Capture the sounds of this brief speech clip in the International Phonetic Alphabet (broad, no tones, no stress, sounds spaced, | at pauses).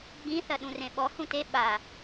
ɡ͡b ĩ θ ɐ ɗ ũ r ẽ ɓ ɔ h ũ t e ɓ a